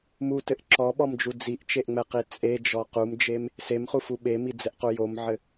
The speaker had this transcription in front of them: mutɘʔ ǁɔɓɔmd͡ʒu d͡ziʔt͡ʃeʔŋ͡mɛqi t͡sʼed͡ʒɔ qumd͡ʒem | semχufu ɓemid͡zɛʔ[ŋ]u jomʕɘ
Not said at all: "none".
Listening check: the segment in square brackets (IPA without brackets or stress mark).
q